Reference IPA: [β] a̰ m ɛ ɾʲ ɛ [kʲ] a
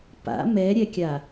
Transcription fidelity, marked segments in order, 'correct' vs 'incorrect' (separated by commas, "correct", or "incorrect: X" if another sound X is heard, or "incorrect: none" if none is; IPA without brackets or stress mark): incorrect: p, correct